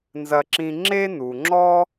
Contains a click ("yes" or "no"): yes